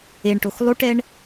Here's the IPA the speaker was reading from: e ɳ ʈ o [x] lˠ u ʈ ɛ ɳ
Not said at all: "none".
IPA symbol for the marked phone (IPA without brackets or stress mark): x